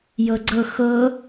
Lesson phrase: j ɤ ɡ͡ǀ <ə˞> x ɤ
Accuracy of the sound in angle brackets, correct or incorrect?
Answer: incorrect